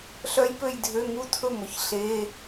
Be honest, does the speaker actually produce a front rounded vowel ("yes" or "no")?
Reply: yes